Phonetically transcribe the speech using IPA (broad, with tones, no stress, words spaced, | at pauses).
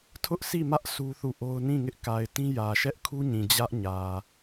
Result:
tʰʊ˦ʔsi˦˨mä˦ʔ su˦θu˦˨ʔo˦ʊ̯ nĩ˦˨ŋɪ˦ʔka˨ɪ̯tĩ˦ jä˨ ʃɛ˦ʔkʰu˦ɲĩ˨ d͡ʑä˦ʔɲä˨